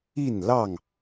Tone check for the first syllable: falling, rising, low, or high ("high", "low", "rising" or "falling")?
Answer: falling